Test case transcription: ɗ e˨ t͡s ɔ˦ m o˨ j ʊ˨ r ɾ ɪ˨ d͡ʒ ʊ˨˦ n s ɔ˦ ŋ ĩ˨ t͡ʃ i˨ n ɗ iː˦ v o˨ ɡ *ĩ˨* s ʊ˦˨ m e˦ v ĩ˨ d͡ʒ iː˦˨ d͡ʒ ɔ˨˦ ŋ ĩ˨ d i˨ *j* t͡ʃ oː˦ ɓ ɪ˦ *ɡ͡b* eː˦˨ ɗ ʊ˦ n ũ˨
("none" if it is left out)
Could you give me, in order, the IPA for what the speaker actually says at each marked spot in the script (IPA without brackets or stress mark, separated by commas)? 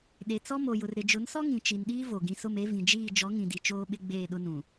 ĩ˨, none, ɡ͡b